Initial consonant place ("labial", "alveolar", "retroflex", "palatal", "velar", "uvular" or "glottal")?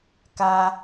velar